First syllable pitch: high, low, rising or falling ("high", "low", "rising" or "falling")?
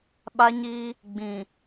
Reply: high